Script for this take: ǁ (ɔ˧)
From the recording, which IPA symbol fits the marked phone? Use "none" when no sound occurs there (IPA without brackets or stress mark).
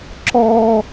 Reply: ɔ˧